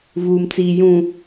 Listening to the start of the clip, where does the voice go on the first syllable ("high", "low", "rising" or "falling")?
low